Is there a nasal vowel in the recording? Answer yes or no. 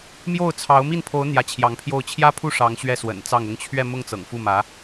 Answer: no